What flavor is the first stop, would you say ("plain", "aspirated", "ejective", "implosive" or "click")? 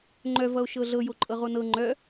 click